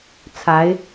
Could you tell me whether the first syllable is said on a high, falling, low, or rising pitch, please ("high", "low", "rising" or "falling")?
rising